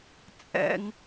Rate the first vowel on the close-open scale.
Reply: mid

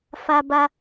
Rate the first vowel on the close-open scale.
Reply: open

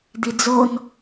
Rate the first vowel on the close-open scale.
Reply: close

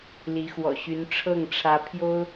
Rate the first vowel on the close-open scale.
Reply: close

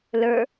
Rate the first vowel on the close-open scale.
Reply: mid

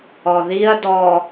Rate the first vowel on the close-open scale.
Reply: mid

